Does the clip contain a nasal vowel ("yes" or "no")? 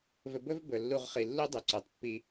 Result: no